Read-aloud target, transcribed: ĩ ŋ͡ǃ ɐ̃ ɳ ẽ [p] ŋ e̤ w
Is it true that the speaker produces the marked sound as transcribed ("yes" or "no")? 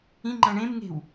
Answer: no